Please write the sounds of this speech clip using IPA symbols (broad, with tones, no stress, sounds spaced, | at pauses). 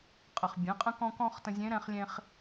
qʼ ə˩ χ bʲ ɛ̃˩˧ qʼ ə̃˧ k ɔ̃˧ k ɔ̃˧ χ t ə̃˧ zʲ ẽ˧˥ ɾ ɛ̃˧ χ lʲ ẽ˧ χ